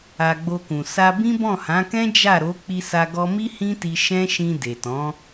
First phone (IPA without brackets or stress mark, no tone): a